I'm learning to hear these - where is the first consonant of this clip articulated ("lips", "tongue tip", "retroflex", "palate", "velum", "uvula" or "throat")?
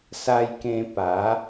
tongue tip